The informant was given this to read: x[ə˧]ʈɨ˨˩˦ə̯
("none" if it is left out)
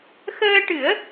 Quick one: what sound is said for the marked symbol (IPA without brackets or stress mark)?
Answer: əː˧